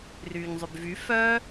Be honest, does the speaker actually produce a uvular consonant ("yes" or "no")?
no